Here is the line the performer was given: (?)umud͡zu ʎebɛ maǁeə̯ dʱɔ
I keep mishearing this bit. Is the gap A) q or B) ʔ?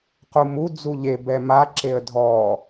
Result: A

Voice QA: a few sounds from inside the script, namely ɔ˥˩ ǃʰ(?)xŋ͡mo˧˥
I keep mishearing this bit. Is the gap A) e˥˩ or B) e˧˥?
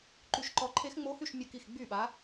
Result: B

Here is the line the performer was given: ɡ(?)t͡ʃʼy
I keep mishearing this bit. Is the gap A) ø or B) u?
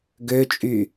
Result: A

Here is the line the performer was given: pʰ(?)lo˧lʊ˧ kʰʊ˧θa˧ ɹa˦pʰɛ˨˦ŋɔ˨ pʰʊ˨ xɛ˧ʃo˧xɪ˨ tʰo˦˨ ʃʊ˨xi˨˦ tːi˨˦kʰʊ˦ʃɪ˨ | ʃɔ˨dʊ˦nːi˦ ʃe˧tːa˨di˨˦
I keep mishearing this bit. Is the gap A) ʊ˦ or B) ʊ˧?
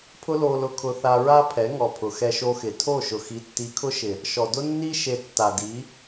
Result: A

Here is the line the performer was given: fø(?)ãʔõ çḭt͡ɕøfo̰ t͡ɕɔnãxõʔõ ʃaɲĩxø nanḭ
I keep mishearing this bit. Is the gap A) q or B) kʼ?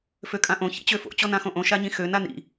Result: B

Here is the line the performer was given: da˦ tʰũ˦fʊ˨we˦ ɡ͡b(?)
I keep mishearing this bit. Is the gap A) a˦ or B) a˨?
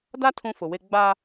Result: A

